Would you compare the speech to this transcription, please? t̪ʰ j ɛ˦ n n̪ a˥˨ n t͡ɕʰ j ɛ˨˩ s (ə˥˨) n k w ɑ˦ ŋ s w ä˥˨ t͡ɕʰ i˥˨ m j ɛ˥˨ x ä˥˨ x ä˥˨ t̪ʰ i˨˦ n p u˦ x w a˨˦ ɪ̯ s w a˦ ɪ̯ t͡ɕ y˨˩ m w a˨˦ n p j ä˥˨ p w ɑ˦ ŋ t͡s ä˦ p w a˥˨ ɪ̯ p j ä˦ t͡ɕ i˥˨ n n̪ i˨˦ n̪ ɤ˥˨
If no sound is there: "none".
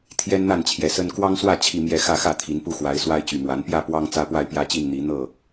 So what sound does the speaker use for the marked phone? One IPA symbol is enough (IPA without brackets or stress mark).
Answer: ə˦